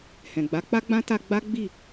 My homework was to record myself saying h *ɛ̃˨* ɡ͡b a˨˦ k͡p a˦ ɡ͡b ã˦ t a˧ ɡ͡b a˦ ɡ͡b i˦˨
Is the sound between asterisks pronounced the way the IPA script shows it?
yes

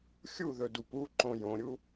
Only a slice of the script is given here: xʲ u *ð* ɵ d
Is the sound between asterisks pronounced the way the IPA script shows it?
yes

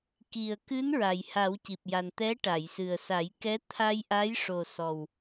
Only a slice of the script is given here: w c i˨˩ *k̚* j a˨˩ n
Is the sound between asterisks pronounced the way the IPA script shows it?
no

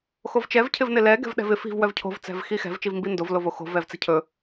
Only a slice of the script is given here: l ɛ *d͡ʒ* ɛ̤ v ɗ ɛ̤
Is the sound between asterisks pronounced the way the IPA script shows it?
no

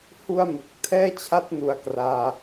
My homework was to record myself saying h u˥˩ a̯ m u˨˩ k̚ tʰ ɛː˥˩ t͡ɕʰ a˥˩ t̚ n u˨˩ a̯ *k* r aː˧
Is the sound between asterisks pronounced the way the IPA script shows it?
yes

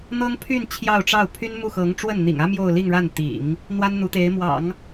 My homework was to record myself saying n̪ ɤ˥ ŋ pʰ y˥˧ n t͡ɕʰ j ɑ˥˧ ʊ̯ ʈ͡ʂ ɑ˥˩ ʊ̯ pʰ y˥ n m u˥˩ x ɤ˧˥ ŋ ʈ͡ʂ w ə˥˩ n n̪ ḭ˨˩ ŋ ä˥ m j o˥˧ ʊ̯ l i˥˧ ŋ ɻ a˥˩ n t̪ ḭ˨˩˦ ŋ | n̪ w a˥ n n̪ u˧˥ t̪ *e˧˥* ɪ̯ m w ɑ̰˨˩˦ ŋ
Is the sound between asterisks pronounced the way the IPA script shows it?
yes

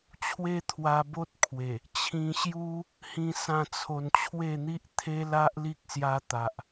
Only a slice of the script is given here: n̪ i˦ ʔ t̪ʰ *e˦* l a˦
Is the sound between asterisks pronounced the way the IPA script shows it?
yes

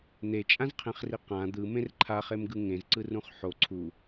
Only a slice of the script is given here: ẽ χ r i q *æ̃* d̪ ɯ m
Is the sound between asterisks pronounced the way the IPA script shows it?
no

